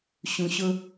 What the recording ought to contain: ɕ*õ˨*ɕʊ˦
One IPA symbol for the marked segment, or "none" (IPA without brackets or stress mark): ũ˨